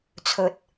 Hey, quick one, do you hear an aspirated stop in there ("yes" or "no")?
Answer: yes